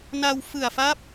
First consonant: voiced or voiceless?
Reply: voiced